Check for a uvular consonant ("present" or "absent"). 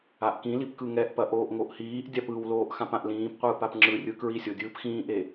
present